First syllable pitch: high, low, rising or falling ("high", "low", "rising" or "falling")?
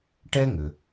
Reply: high